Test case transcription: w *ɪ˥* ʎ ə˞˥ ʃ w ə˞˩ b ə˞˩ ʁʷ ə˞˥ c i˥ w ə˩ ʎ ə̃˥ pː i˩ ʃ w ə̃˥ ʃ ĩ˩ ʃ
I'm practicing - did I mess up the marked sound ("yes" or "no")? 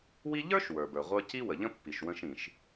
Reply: yes